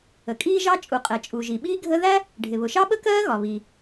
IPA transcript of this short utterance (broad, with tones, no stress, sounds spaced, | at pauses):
ə˩ kʼ iː˥ ʒ ɑ˥ t͡ʃʼ u˩ qʼ ɛ˩ t͡ʃʼ u˩ ʒ i˩ ɓ iː˥ ɡʱ ə˥ ð æ˥ | ɖʱ ɪ˩ β ʊ˩ ʃ ɑ˥ ɓ ə˥ k ɜː˥ ɣ ɒ˩ β i˩